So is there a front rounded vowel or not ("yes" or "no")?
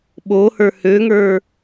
yes